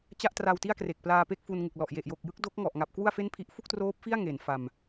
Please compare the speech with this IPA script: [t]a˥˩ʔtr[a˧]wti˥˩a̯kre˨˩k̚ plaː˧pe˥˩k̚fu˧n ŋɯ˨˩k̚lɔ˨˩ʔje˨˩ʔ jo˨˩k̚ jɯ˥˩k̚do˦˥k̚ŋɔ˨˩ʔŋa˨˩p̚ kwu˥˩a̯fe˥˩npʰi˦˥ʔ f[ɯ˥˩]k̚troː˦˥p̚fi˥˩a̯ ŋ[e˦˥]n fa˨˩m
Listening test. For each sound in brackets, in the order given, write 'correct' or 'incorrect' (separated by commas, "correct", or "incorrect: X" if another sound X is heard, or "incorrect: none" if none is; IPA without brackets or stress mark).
incorrect: t͡ɕ, correct, incorrect: u˥˩, incorrect: e˩˦